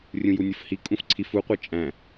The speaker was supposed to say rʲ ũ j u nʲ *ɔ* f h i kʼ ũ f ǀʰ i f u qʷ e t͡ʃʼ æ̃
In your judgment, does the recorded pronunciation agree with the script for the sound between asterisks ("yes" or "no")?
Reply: no